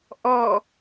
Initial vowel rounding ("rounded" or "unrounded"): rounded